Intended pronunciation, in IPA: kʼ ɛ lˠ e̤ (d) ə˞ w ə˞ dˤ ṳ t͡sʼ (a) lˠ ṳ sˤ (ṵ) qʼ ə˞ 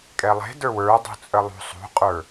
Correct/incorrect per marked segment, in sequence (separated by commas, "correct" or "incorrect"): correct, incorrect, incorrect